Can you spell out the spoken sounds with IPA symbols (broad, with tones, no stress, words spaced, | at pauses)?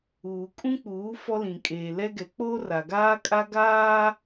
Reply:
uː˨kʼũ˦k͡puː˨˦ fɔ˦lĩ˨kʼeː˨ lɛ˦ɡɛ˨˦ k͡po˦ra˨ɡaː˦kʼa˦ ɡaː˦